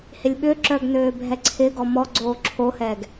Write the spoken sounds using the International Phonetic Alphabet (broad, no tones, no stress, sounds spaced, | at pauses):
h ɪ lʲ ɓ ʏ ǁ œ ɡ n øː bʱ ɛ ǀʰ ɪ ɡ ɔ m ɔ ɡ͡ǀ oː ǁʰ o h ɛ ɡ